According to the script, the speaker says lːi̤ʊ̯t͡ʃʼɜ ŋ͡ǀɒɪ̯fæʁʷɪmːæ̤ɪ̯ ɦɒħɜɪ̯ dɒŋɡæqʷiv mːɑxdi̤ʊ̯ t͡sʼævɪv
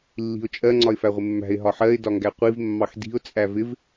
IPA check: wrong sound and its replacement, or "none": none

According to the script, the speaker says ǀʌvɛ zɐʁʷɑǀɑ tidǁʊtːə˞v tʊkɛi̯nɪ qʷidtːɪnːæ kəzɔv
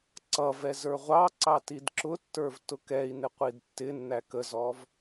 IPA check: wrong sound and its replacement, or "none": ɐ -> ə˞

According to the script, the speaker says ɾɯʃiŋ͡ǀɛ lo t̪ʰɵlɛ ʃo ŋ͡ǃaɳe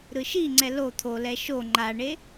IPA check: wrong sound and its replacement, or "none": ɵ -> o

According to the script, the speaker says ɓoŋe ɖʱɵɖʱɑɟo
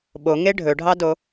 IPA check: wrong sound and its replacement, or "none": ɟ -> d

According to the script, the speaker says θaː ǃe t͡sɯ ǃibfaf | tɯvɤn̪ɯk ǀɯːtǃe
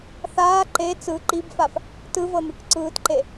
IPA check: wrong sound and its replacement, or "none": none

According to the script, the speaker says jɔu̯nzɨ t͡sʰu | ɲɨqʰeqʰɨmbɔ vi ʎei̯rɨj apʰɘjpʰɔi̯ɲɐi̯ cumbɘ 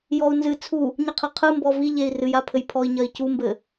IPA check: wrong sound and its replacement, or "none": none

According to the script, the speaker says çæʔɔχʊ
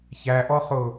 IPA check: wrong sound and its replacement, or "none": none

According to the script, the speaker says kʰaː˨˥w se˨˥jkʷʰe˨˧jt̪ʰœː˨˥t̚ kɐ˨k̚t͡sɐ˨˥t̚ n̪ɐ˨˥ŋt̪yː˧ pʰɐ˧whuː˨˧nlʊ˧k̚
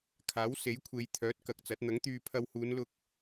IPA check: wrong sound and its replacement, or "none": none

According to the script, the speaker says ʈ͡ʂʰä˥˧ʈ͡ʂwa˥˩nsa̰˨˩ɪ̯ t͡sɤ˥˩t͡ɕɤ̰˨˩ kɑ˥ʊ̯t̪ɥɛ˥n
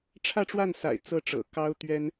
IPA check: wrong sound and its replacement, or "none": t͡ɕ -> ʈ͡ʂ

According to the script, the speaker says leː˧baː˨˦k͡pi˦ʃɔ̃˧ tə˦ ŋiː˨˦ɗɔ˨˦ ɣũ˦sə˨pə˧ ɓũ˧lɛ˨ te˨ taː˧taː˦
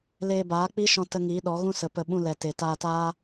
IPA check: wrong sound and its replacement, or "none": none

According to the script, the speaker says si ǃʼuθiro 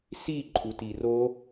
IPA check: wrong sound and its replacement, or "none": θ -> t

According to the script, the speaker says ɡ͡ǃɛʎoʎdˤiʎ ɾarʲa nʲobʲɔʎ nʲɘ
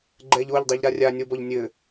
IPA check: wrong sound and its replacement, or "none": bʲ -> b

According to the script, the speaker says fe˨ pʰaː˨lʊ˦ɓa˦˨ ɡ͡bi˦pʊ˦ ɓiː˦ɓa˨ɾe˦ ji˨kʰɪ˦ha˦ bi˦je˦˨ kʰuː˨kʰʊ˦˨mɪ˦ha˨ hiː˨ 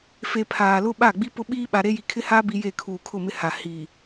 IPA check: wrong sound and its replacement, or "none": none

